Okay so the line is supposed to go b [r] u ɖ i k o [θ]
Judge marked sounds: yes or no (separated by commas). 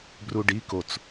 yes, no